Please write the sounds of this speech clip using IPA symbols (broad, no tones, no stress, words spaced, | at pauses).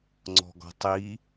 ŋ͡ǀɔ̤ɡɔ̤tˤi